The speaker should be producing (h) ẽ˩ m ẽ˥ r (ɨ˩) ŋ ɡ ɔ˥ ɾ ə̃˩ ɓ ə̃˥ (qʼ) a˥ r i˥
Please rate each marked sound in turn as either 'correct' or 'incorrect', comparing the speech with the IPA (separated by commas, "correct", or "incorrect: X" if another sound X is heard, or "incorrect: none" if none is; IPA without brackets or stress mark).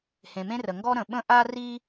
correct, incorrect: ə˩, incorrect: ʔ